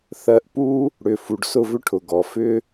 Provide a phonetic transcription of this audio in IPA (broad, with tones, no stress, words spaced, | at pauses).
θɜ˧ʔpu˦ | ɽʏ˨ fu˨ɖsʊ˦˨vʏ˦ʈʰʊ˨ ɡɔ˨fʏ˦